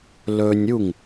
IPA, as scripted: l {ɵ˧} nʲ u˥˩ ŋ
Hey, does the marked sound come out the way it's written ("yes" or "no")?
yes